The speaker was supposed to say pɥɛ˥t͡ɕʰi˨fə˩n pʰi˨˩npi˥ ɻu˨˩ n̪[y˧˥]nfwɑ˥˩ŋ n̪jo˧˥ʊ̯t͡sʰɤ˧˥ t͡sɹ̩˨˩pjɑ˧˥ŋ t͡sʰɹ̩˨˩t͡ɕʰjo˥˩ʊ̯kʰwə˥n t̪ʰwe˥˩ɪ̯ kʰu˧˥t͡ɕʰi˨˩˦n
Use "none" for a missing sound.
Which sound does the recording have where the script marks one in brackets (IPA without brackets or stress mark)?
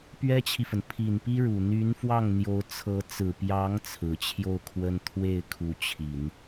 y˧˥